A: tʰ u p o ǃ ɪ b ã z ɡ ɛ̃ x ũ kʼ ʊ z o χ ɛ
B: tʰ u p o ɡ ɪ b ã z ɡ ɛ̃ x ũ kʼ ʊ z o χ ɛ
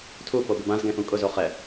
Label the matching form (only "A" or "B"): B